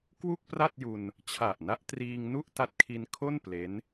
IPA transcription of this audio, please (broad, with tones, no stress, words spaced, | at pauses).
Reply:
kwu˥˩k̚pra˥˩t̚ju˧n | t͡ɕʰa˨˩ʔna˦˥ʔtriː˧ŋ nu˥˩ʔta˦˥t̚kʰi˧n kʰo˥˩n ple˦˥n